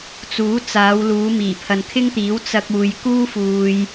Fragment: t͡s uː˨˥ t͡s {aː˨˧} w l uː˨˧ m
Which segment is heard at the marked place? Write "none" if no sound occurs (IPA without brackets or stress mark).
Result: aː˨˧